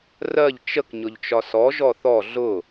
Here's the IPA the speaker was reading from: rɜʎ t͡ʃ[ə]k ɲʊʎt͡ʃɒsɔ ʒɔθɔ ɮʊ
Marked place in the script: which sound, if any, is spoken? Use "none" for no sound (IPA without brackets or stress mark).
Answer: ə